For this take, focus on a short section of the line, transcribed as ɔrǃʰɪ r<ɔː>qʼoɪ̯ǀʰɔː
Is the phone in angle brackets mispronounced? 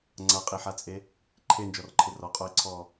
yes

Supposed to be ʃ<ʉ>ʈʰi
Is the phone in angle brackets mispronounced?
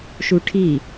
yes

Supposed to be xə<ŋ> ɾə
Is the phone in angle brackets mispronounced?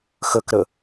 yes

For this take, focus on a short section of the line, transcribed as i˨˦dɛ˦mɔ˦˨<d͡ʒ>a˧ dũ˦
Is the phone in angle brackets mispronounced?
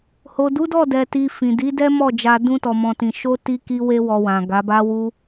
no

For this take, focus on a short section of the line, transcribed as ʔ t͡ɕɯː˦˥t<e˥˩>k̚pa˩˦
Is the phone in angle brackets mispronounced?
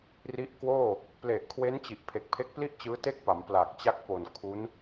no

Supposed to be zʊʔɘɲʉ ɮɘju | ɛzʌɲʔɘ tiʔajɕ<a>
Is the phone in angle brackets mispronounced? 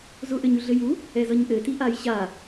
no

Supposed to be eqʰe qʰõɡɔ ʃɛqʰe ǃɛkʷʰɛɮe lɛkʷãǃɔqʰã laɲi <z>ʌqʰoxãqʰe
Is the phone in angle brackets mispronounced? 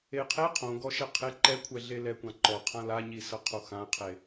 yes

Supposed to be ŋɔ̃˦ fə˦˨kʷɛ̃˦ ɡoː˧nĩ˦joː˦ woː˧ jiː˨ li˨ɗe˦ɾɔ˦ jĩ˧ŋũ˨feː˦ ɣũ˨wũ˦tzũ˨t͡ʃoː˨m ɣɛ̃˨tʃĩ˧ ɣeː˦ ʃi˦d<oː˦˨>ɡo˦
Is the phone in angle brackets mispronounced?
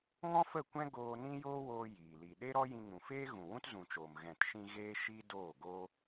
no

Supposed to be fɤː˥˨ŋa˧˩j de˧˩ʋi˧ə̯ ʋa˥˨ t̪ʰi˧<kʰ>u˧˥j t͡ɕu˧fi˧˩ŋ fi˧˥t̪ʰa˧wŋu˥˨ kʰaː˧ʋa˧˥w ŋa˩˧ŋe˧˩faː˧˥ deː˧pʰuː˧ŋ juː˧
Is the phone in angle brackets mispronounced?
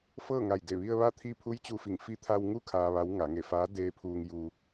yes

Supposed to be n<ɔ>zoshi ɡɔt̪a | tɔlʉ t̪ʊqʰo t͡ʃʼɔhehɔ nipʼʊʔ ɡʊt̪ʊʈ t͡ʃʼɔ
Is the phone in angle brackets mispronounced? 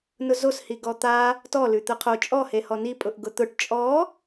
yes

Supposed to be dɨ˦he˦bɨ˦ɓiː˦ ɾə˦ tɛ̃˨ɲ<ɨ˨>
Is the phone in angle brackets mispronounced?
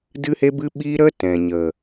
yes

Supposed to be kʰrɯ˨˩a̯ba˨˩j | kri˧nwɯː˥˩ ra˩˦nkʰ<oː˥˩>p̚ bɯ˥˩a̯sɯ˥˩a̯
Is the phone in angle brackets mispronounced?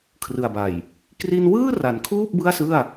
yes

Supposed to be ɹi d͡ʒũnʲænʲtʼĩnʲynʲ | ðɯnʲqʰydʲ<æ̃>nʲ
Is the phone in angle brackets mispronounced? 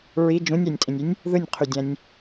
no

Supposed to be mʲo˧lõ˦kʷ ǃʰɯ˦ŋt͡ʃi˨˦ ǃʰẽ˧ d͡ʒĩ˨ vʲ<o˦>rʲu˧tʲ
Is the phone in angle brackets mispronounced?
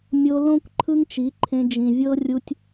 yes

